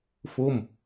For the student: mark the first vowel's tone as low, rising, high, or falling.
falling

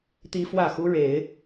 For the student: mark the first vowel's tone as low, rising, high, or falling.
high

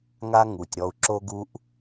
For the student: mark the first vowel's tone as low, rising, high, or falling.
high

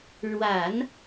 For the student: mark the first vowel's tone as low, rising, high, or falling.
low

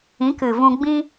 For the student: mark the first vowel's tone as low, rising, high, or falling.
rising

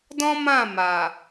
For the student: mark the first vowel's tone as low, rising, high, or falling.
high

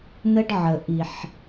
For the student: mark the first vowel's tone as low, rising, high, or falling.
high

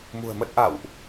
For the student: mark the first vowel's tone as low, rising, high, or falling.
low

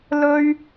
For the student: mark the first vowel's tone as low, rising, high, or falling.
high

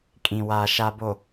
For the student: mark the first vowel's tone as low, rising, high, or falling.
low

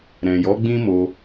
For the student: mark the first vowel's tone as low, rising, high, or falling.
low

